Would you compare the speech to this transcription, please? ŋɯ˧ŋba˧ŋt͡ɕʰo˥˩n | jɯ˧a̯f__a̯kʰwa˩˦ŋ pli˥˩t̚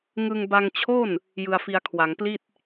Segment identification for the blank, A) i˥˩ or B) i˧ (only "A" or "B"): B